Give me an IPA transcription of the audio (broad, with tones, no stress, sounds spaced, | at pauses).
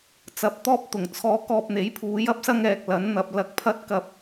t͡s ɐ˨ p̚ t̪ ɔː˥ p̚ t̪ ʊ˨˩ ŋ t͡sʰ ɔː˧ k ɔː˧ p̚ n̪ e˨˥ j pʰ uː˨˧ j ɐ˥ p̚ s ɐ˧ ŋ ɛː˨ k̚ l ɐ˨˥ n n̪ ɐ˨ p̚ l ɐ˧ k̚ pʰ ɐ˥ t̚ k ɐ˧ p̚